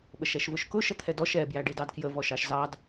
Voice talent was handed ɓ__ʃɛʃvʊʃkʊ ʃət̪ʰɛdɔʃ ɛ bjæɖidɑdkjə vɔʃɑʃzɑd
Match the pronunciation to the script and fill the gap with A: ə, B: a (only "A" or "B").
A